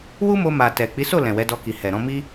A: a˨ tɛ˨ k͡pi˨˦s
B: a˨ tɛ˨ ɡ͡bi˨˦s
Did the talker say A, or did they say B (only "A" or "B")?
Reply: A